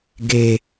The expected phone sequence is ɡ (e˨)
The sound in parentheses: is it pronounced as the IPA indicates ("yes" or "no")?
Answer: yes